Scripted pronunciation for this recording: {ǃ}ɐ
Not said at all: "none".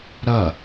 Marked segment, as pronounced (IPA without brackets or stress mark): ɾ